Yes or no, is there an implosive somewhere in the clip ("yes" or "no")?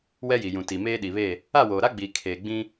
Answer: yes